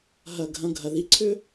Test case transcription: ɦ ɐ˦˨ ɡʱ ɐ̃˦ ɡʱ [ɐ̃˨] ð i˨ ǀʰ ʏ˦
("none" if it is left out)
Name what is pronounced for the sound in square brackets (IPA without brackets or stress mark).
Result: ɐ˨